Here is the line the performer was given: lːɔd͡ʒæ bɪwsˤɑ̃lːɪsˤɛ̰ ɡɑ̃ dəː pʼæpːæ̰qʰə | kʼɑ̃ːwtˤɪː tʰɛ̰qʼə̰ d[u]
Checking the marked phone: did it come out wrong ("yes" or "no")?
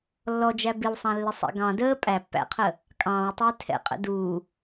yes